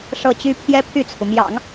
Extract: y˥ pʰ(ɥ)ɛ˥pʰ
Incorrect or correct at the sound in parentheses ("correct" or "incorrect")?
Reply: incorrect